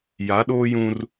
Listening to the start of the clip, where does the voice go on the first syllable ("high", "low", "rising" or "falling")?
rising